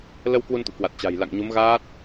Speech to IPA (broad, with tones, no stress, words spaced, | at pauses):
lə˧w kwu˧nt̪ṵ˧˨kwa˨˩t̚ t͡ɕa̤˨˩jla̰˧˨ŋɲu˨˦m ɣaː˦˥t̚